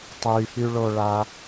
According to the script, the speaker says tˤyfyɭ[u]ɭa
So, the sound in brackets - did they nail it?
no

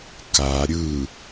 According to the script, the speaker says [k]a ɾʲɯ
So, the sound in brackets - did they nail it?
yes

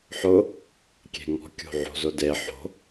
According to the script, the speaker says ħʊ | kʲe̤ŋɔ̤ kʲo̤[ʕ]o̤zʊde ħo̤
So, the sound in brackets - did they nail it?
yes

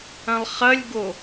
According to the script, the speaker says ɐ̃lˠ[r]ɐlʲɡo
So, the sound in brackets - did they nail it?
no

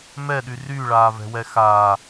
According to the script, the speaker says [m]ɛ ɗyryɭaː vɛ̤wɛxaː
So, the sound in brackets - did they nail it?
yes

